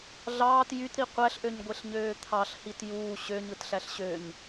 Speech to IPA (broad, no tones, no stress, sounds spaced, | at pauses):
ɮ ɑː t j y t ɾ i qʷ æ ɬ ʔ ø ɲ ɡʷ e ɬ ɲ øː t̪ʰ ɑ ɬ h i t j uː ɕ ø ɲ ɯ t ɬ æ ɬ ɕ ø ɲ